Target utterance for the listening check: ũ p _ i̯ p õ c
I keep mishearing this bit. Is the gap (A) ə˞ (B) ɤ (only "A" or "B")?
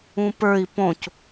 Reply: A